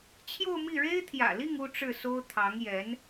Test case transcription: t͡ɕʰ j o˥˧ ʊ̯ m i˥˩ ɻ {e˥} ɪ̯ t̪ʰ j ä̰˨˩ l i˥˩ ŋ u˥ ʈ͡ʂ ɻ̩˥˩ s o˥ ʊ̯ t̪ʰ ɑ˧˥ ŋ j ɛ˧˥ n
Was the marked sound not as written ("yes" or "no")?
no